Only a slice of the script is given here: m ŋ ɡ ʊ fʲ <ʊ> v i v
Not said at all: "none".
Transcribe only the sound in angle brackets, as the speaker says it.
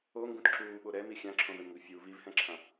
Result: u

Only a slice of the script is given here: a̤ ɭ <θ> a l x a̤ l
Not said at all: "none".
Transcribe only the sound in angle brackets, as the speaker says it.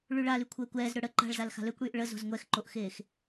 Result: z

